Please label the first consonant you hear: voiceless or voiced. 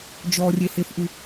voiced